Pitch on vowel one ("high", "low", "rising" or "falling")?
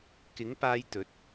rising